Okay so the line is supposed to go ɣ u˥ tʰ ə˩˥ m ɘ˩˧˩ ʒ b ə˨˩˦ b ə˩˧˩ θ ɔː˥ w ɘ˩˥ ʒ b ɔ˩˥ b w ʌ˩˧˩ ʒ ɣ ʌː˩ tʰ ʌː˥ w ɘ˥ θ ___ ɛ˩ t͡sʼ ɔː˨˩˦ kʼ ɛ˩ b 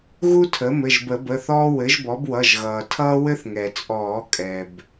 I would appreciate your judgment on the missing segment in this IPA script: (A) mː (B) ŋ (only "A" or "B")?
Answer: B